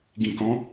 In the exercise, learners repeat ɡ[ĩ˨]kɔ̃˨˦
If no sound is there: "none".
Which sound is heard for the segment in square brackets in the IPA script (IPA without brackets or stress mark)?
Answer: ĩ˨